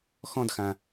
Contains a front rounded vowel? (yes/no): no